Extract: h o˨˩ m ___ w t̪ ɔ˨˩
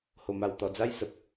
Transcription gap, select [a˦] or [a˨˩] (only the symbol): a˨˩